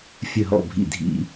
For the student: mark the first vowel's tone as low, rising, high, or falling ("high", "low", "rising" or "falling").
falling